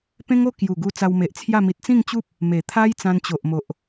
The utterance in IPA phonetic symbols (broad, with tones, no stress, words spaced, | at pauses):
pẽ˦ŋo˥˧ kju˨˩ɡu˧ t͡sa˧wme˨ʔt͡sʰja˥˧ mi˨t̚t͡sĩ˥˧ŋt͡ɕu˦p̚ | me˨˩t̪ʰa˦j t͡sã˧nt͡ɕo˨ʔmo˨ʔ